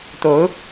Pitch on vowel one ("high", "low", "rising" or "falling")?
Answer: rising